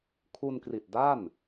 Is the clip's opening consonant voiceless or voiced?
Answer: voiceless